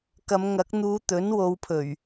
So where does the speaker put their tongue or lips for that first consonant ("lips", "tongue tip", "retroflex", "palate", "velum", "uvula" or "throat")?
velum